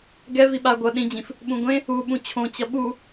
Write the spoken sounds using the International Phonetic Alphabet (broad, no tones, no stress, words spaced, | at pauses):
ɡɛ viɓa ɡʷʌ ɗĩd͡ʑĩf | ɓũɡʷẽ | u ɓũt͡ɕʰõ t͡ɕʌɓu